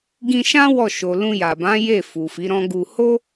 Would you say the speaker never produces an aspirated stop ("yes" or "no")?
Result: yes